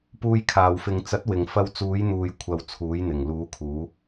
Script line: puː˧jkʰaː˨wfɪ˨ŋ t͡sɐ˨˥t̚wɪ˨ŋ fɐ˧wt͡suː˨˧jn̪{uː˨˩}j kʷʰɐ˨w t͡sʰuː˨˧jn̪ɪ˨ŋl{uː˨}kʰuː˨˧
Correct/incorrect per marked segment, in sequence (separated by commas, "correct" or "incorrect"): incorrect, incorrect